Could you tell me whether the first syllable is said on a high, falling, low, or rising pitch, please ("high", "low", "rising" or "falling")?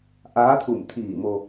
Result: rising